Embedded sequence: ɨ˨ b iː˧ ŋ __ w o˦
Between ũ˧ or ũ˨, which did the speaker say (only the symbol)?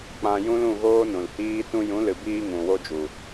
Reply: ũ˨